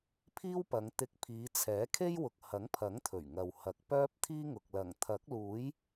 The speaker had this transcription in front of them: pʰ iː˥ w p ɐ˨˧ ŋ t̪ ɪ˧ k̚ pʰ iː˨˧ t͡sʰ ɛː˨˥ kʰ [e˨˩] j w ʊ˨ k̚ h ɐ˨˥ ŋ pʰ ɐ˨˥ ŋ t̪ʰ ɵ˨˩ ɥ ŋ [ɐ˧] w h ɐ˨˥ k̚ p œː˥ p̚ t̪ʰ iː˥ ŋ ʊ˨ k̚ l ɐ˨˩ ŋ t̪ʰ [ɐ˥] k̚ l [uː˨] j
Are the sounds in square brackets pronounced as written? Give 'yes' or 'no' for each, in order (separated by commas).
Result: no, no, no, no